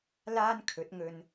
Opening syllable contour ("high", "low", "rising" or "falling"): high